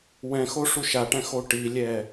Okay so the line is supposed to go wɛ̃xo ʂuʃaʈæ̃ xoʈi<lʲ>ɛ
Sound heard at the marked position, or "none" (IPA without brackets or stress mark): lʲ